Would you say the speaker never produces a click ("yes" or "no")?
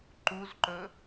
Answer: no